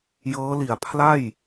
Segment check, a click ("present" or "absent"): absent